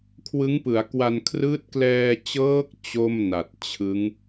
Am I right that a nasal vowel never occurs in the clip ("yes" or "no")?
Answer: yes